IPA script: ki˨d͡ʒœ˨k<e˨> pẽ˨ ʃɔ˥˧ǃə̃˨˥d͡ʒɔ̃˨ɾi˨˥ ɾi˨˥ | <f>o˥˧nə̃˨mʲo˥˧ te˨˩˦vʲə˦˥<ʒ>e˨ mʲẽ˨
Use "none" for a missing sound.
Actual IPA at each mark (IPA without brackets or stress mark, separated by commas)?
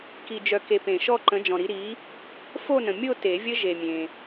e˨, f, ʒ